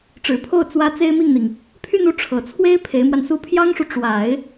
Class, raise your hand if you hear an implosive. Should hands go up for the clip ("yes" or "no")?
no